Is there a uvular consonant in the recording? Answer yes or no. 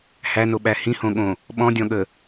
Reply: no